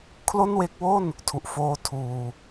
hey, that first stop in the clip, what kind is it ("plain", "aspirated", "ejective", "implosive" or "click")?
aspirated